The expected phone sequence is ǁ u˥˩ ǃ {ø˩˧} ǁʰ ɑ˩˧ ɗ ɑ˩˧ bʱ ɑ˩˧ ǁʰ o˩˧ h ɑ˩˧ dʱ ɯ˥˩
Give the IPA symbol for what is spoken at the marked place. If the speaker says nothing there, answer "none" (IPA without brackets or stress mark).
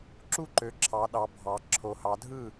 ø˩˧